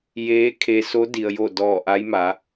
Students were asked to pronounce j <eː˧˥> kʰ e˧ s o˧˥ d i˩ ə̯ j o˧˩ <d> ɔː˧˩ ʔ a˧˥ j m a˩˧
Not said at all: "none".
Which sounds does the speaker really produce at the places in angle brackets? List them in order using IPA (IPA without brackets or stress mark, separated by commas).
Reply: eː˧˥, d